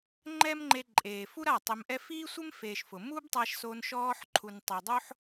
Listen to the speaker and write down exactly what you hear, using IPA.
ŋ͡ǃ ɛ˦ m ŋ͡ǃ e˧ ǃʼ eː˨ f u˦ ɾ a˦˨ tˤ ɪ˧ m ʔ ɛ˦ f iː˦ sʷ ɪ˦ m f eː˨ ʃ f ʊ˨ m u˦ b tˤ a˧ ʃ s o˧ n ʃ ɔː˧ ħ ǃʰ u˨ n tˤ e˨ dˤ o˦ ħ

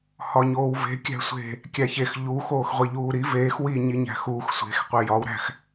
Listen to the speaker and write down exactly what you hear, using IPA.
h ɒ ɲ oː w v e̤ kʲ æ̤ sʷ e̤ | kʲ æ ç e x ʎ u x oː x ʁʷ i ʎ uː ɾ i v eː x w i ɲ i ɲ æ̤ x uː x sʷ e̤ x qʷ e j ɒ w ɾ æ̤ x

